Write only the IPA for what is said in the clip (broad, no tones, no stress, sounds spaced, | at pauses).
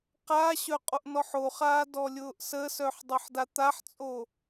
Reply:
q a ɕ œ qʼ o ʔ n ɔ ħ o χ aː d ɔ lʲ ʊː ʔ s ə s œ ħ dˤ ʊ ħ d a t̪ a ħ t͡sʼ o